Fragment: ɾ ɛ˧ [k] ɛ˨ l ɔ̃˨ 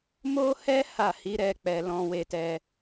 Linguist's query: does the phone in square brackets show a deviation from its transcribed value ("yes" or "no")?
yes